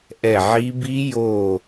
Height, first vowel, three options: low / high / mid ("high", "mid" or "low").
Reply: mid